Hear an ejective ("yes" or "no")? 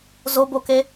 no